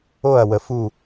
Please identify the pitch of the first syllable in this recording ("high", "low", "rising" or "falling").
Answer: falling